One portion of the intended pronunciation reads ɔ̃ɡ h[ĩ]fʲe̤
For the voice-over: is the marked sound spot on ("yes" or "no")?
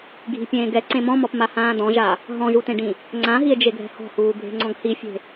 no